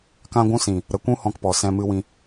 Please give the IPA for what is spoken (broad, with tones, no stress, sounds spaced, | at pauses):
k ã˧ ɡʷ ũ˧ s ĩ˨ | ɾ ə˨˦ kʷ ũ˦ h ɔ̃˧ k p ɔ˨ s ɛ̃˧ m ɨ˧ w ĩ˧